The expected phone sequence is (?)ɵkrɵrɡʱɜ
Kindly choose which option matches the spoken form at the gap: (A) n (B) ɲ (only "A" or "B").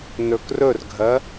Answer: A